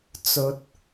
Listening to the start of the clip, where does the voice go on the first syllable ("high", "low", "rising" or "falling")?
rising